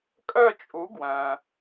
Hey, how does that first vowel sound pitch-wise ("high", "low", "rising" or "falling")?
falling